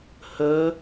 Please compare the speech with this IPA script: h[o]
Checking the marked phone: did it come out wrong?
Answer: yes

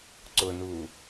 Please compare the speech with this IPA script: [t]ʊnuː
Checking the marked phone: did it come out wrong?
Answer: yes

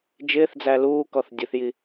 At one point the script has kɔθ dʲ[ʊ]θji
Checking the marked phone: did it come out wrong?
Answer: no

